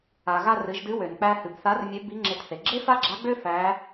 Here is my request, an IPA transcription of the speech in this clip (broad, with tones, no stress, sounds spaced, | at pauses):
a˩ ɣ a˧ r ɨ˩˧ ʒ d ɨ˧˥ w ø˩ n k͡p æ˧ h ɨ˩ b θ a˧˥ r mʲ ø˧˥ b i˧˥ ŋ͡ǁ e˧ t θ e˩ ɡ͡ǁ e˥ f a˥ ɡ͡ǁ a˧˥ ɡ͡b ø˥ f æ˧˥